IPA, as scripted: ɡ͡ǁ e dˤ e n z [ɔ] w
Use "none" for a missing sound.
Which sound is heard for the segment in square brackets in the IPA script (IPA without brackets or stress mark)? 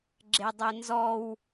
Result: ɔ